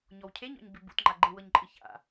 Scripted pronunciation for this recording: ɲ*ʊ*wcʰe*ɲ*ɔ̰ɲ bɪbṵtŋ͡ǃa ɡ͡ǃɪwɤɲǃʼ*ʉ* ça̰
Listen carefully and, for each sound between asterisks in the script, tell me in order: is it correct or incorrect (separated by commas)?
incorrect, correct, incorrect